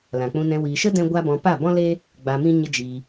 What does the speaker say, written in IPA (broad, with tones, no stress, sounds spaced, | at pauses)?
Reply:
l ã˨ k͡p ũ˧ n ɛ̃˧ w iː˨ ʃ ə˦ d ɛ̃˦ ɡʷ a˦ b ɔ̃˧ p a˦˨ b ɔ̃˦ l eː˦ | ɡ͡b a˧ m ĩ˦ ɲ ə˦ d͡ʒ iː˧